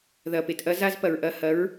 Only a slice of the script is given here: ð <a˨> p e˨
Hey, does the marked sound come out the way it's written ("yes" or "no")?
no